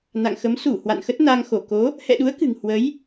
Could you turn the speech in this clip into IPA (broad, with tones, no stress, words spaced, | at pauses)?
na̰˧˨ŋxə˨˦m su˧˩ hwa̰˧˨nxə˦˥t̚na˧ŋ xo˧˩ko˨˦ | hɛ̰˧˨ɗu˨˦ə̯kɨ̤˨˩ŋ hwə˨˦j